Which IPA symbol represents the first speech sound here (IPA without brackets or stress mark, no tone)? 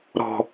ɾ